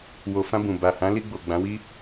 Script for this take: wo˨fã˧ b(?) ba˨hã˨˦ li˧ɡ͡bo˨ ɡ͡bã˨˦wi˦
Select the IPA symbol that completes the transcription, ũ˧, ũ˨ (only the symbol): ũ˨